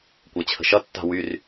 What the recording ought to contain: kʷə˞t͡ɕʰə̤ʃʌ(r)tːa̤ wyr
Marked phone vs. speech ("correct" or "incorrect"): incorrect